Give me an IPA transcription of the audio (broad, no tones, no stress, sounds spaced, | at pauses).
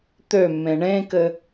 t̪ ø mː ẽ ɳ ẽ k ɘ